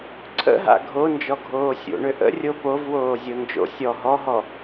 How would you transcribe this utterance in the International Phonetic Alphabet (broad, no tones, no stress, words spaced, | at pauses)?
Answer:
ǀʰə̰ɦa̰ ɡʱond͡ʒɔɡʱoː sʲo̰ɳʏ ʔə̰rʲo povwoːzʲo nd͡ʒo̰ sʲɔ ɦɔɦɔ